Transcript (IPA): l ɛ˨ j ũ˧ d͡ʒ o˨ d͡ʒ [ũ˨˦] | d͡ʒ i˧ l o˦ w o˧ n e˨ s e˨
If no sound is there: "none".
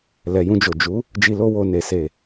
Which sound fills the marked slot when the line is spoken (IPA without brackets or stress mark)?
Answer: u˨˦